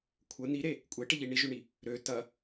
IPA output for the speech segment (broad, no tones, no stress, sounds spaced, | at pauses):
kʷʰ ə n̪ i ɾ e | kʷʼ e ʈ e ʎ i ɳ i ʒ ø ɳ i | ɾ ø t ɐ